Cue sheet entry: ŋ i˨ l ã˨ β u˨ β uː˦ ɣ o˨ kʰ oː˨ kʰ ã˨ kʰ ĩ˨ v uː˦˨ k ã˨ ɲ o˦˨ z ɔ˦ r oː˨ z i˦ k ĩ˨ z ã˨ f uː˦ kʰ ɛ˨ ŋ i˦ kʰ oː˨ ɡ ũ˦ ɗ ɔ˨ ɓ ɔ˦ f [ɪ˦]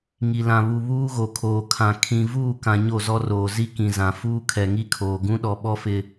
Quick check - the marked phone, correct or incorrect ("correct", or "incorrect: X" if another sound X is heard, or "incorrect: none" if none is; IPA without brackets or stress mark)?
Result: correct